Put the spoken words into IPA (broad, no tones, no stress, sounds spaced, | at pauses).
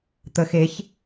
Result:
t̪ ə x e ç